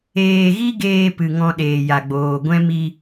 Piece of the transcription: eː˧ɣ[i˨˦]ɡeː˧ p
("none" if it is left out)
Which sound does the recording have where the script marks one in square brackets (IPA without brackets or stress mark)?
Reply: i˦